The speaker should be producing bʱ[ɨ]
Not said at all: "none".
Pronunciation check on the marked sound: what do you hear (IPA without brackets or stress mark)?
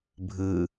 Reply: ɨ